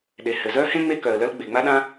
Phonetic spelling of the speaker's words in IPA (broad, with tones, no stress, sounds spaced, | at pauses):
ɗ e˩ h ɘ˩ z œ˥ h ẽ˥ ŋ͡m e˥ k œ˩ ə̯ l œ˥ l ɡ͡b e˩ ŋ͡m a˥ ɗ ã˥